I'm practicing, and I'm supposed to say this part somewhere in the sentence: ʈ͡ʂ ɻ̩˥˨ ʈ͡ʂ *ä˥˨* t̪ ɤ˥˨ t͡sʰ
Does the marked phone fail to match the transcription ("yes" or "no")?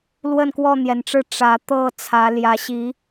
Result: yes